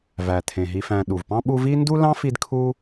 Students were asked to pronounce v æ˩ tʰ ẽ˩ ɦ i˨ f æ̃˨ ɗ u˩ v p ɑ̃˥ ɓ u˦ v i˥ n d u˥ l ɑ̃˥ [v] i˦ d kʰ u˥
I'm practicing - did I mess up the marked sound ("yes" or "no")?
yes